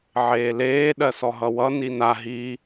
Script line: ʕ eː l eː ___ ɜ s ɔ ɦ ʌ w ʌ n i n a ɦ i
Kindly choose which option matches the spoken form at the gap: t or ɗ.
ɗ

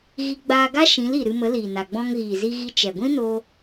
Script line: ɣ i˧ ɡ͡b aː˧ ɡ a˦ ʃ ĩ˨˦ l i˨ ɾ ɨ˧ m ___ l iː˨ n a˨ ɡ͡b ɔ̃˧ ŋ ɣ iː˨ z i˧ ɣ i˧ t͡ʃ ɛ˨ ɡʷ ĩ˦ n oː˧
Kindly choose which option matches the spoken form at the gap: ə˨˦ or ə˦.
ə˨˦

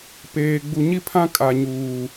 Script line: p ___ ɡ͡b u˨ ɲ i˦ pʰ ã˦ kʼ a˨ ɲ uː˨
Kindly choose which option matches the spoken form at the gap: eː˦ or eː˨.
eː˨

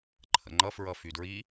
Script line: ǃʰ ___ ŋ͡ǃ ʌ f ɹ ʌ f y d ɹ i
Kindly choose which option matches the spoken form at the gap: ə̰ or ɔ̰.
ə̰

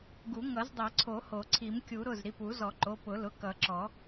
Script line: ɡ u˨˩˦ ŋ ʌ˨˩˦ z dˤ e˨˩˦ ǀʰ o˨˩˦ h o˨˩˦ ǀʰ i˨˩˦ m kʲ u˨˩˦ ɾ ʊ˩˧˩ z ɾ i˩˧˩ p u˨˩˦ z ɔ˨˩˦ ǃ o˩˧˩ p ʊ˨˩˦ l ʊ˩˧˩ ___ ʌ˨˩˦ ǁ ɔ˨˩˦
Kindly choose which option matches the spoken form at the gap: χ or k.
k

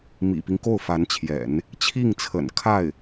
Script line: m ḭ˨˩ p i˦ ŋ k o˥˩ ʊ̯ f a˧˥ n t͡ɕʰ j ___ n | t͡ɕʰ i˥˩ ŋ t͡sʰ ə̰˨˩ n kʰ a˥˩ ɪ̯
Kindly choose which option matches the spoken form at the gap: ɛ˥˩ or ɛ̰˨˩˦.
ɛ̰˨˩˦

